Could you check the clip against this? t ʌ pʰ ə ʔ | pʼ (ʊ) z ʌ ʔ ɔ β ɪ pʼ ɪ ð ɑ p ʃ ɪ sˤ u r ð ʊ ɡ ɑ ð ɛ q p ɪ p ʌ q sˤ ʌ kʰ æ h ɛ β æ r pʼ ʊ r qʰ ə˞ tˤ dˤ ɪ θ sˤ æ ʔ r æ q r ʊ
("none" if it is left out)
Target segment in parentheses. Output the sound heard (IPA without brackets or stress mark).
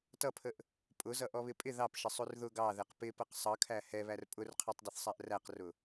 ʊ